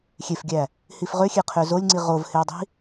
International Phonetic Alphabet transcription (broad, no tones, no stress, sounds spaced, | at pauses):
xʲ e f ɡʲ æ | h i f ʁ ø xʲ e qʰ ø z o lʲ ŋ͡ǀ i ʁ o v h e w dˤ i̤